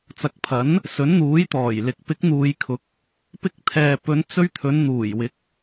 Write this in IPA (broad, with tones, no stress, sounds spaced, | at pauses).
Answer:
t͡s ɐ˨ k̚ pʰ ɐ˨˥ n | s ɵ˨˥ n n̪ uː˨˥ j t̪ ɔː˨˩ j l ɪ˨ k̚ p ɪ˨˥ k̚ n̪ uː˨ j kʰ ʊ˨˥ k̚ | p ɪ˧ k̚ t̪ʰ ɛː˨ p ɵ˨˧ n t͡s ɵ˧ ɥ t̪ʰ ɵ˨˧ n n̪ uː˨˩ j w ɪ˨˥ k̚